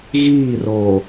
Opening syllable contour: falling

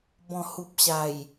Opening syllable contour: low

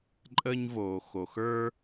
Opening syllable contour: high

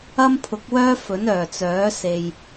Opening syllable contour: high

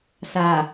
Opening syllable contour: low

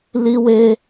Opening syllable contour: high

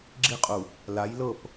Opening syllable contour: high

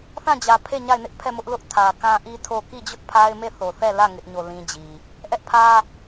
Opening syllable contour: falling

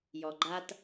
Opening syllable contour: low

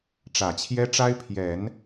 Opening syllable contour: low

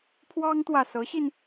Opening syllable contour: high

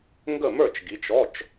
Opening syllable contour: falling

